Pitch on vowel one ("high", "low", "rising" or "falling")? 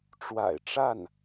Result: low